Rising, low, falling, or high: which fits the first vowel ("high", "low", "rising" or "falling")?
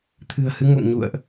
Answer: low